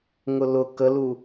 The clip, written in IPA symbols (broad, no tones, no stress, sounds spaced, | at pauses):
ŋ ʊ l ʊ k ə l u